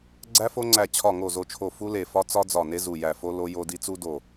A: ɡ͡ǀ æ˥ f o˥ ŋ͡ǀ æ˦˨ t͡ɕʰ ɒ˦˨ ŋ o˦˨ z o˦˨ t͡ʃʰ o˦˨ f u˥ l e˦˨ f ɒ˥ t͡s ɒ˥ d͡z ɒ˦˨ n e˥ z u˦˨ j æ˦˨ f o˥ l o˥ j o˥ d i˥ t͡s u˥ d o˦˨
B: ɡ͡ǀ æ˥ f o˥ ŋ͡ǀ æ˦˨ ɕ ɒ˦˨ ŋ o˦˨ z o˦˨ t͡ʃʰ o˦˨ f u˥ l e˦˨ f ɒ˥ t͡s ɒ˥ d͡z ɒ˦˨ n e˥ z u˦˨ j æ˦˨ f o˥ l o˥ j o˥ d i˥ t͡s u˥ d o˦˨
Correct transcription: A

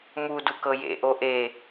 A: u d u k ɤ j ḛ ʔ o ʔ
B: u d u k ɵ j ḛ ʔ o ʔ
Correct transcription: A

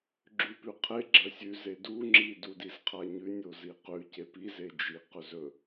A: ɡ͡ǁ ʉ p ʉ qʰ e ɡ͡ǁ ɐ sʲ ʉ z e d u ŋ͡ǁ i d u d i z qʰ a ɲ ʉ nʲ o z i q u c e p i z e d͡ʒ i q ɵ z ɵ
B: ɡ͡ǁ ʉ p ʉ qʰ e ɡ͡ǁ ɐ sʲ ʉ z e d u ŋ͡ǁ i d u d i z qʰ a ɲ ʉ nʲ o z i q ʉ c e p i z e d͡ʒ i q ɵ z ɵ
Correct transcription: B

